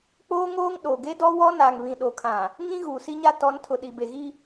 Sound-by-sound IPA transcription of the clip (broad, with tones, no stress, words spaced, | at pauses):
k͡poː˦ŋoː˦ŋ ɗo˨ ɡe˦dɔ˦wɔ˦ naː˨ŋβĩ˨ɗo˨kʰã˨ | ŋĩ˦ ɣuː˨si˦ɲa˦ tɔ˨˦ntʰʊ˨ ɗi˨be˨ɣi˦